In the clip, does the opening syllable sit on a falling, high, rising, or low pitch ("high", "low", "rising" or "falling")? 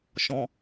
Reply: low